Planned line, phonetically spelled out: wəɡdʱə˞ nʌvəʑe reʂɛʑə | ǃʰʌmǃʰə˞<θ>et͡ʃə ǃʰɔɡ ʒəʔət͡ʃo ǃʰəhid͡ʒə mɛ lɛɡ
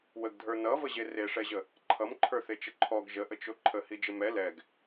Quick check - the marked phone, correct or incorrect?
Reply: correct